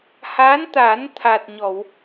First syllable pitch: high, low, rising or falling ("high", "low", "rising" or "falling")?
rising